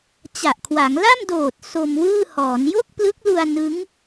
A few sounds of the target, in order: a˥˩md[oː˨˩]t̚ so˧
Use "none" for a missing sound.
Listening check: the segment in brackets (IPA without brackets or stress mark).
oː˨˩